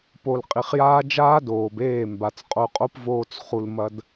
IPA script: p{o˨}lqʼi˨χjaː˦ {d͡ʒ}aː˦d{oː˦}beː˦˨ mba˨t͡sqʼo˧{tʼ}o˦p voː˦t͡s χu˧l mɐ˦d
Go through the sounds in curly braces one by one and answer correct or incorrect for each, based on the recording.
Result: correct, correct, incorrect: oː˨, incorrect: qʼ

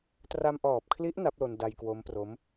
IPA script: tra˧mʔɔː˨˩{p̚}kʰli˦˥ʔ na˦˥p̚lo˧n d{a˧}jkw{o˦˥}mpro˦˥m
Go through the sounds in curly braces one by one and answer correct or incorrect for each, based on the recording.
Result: correct, correct, correct

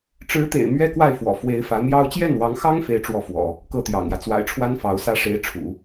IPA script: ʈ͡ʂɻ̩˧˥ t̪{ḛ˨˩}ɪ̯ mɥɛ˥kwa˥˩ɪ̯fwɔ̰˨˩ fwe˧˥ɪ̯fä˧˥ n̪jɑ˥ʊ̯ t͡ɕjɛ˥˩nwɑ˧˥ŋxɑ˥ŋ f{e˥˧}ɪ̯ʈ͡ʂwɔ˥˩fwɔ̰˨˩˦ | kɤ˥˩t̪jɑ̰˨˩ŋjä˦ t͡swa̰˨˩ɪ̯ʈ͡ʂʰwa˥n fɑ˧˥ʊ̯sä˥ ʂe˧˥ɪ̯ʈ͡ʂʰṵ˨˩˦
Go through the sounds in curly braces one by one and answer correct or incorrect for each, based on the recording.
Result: correct, correct

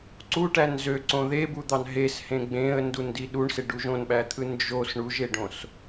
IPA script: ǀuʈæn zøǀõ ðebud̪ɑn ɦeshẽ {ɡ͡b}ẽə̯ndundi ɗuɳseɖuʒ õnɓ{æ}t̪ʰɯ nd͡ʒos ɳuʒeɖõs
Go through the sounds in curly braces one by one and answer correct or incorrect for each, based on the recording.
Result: correct, correct

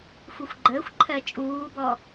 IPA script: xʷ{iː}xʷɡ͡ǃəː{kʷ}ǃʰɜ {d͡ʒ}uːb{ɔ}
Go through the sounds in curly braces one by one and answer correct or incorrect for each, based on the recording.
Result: incorrect: i, incorrect: xʷ, incorrect: t͡ʃʼ, correct

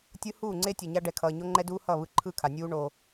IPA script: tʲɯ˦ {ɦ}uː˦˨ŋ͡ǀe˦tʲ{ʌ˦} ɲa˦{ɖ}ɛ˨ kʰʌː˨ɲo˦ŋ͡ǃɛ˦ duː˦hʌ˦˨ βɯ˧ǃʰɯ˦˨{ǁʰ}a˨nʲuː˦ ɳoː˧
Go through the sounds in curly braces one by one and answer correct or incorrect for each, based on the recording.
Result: incorrect: h, incorrect: ʌ˨, correct, incorrect: kʰ

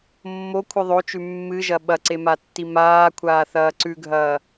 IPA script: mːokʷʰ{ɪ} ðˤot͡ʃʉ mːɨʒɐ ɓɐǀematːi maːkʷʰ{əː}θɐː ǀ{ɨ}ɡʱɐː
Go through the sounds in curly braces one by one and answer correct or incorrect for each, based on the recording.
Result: incorrect: ɨ, incorrect: aː, incorrect: ʉ

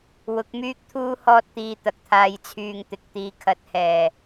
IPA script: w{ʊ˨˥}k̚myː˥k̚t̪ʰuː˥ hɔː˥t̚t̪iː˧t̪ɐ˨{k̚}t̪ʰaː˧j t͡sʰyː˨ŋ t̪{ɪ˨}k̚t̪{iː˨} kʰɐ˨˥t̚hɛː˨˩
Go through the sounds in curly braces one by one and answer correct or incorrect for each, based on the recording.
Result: correct, correct, correct, incorrect: iː˨˧

